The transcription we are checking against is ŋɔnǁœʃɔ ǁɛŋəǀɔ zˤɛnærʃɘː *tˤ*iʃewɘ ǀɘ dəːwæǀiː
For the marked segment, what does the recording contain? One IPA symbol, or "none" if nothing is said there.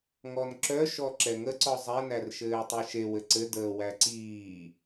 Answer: tˤ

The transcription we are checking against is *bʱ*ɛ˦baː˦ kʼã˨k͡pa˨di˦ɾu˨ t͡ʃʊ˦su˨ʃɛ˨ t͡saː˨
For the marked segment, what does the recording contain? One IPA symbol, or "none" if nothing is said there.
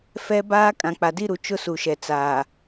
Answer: f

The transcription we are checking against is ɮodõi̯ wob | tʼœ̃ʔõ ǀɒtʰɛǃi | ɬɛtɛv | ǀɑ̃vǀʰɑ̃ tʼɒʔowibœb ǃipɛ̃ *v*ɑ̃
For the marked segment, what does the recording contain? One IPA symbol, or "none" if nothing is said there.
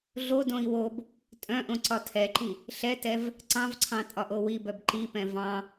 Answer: v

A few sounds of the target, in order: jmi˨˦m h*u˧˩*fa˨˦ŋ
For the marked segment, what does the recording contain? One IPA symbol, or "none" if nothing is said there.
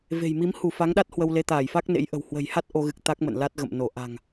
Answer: u˧˩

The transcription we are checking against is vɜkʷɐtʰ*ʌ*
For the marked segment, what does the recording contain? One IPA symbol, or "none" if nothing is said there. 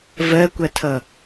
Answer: ʌ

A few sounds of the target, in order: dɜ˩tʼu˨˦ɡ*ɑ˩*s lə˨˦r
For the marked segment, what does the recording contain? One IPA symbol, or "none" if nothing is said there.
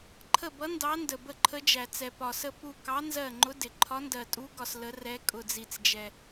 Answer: ɒ˩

